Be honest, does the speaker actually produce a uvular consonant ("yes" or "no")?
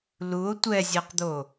yes